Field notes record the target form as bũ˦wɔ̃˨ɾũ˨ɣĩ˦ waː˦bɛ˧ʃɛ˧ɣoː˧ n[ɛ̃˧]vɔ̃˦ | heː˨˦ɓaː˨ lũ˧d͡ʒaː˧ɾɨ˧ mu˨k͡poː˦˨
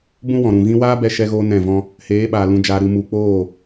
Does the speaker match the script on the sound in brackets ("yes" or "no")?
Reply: no